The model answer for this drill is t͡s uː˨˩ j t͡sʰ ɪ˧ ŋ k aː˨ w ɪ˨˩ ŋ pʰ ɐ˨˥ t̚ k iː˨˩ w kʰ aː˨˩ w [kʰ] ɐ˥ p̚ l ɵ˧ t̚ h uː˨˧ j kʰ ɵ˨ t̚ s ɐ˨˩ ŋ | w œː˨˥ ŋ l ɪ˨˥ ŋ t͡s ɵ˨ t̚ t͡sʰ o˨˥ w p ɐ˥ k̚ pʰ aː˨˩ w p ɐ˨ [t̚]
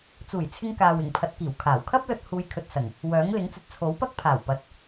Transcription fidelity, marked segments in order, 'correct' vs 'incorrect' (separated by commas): correct, correct